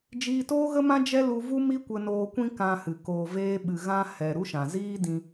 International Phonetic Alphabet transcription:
d͡ʒ iː˧ t oː˦ ɣ ə˦ m ã˦ d͡ʒ ɛ˦ l u˧ v u˦ m i˦ kʷ ə˧ n oː˧ kʷ ĩ˧ k ã˧ h ɨ˨ k oː˨ v eː˧ ɓ ɨ˨ ɣ ã˦ h ɛ˨ ɾ u˦ ʃ ã˨ z iː˦ d ĩ˧

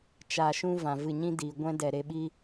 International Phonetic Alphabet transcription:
t͡ʃ a˧ ʃ ũ˦ v ã˧ v ɨ˦˨ ɲ ĩ˦ d iː˨ ɡʷ ɛ̃˦ d ɛ˨ ɾ e˧ ɓ i˦

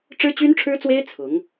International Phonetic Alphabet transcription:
ʈ͡ʂ ɻ̩˥ t͡ɕ y˥ n ʈ͡ʂʰ ɻ̩˥ t͡s w e˥ ɪ̯ t͡sʰ ʊ˧˥ ŋ

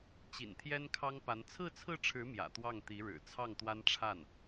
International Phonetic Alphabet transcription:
t͡ɕ ḭ˨˩ n t̪ʰ j ɛ˥ n kʰ ɑ˥ ŋ p a˧˥ n t͡sʰ ɹ̩˥˧ t͡sʰ ɹ̩˥˩ ʈ͡ʂʰ ɻ̩˧˥ m j ä̰˨˩ t̪ w ɑ˥˩ ŋ t̪ i˧˥ ɻ ɻ̩˨˩ t͡sʰ ɑ˥˩ ŋ t̪ w a˥ n ʈ͡ʂʰ a˥˩ n

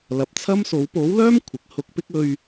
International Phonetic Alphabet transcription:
l ɐ˨ p̚ t͡sʰ ɐ˥ m s o˨˥ w p o˨˥ w l œː˥ m kʷʰ ɪ˨ k̚ h ʊ˧ k̚ p ɪ˥ k̚ ɵ˧ ɥ

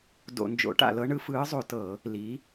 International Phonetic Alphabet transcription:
d o̰˧˩˧ n d͡ʒ o̰˨˥ ʈ a̰˧˩˧ l ɤ˨˥ ɳ ɯ˨˥ f ɯː˨˥ zˤ o˧˩˧ t ɤ˧˩˧ | l i˨˥

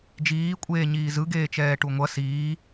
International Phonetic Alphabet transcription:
d͡ʒ iː kʷʼ eː ɲ iː z ɯ ɡ eː t͡ʃ ɛː ʈ u ŋʷ ʌ s iː

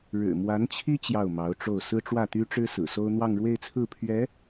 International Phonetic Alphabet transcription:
ɻ ɻ̩˨˩ m w a˧˥ n t͡ɕʰ i˥ t͡ɕ j ɑ˥˩ ʊ̯ m ɑ˧˥ ʊ̯ ʈ͡ʂ o˥˩ ʊ̯ s ɹ̩˥ ʈ͡ʂ w ä˥˩ t̪ y˥ ʈ͡ʂ ɻ̩˥ s ɹ̩˨˩ s o˥ ʊ̯ n̪ w ɑ˥˧ ŋ ɻ w e˥˧ ɪ̯ t͡sʰ ɹ̩˥˩ pʰ ɥ ɛ˧˥

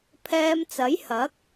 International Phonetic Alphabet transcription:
pʰ ɛː˧ m t͡s ɐ˨˥ j h ɐ˨˥ k̚

